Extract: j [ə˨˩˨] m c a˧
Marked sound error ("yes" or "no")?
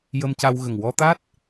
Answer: yes